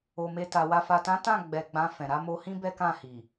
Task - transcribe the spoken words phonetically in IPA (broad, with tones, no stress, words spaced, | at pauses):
o˨me˧ta˨wa˧ fa˨tã˨˦ tã˦˨ɡ͡bɛ˨ ɡ͡bã˧fɛ̃˨ ɾa˧mo˧hĩ˦ bɛ˦kã˦˨hi˨